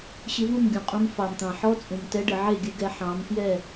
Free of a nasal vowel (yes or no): no